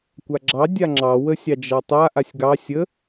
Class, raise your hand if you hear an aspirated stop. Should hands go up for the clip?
no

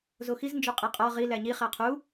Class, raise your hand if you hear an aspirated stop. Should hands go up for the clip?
yes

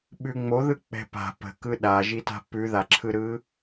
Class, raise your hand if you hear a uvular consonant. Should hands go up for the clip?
no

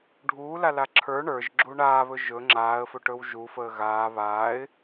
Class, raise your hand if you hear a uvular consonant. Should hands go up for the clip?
no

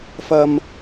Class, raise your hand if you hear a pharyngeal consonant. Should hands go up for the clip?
no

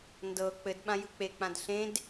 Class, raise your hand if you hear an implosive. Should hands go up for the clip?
yes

